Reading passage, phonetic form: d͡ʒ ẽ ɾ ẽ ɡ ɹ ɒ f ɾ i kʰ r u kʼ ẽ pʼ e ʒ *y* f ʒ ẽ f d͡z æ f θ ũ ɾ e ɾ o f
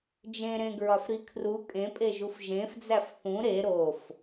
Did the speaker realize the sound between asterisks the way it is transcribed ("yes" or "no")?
no